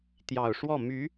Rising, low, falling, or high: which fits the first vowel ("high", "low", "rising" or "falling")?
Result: low